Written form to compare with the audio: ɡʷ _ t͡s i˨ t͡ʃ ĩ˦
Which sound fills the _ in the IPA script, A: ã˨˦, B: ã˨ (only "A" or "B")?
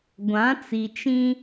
A